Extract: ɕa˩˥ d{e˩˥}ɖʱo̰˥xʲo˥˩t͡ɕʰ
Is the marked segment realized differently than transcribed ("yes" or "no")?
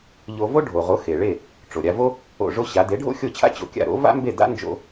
no